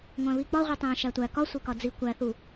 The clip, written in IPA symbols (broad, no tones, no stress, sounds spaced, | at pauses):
ŋʷ æ̃ β i k͡p ɒ ʁʷ i tˤ æ̃ ʃ æ tʷ æ k ɒ sʷ e k ɒ d͡z i kʷ æ θ u